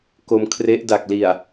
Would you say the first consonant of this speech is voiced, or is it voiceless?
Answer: voiceless